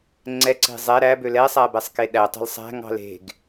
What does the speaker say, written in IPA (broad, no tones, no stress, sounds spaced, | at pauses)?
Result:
ŋ͡ǀ ɛ ǀ e̤ zˤ ɛ ɾ æ b ø l ɛ sˤ æ b ɛ sˤ k e ɗ æ tˤ ɛ̤ l sˤ æ̤ ŋ ɑ̤ l e̤ ɡ